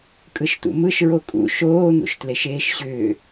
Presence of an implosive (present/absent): absent